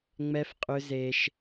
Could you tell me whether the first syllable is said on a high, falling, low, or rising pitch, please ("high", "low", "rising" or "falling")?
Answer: high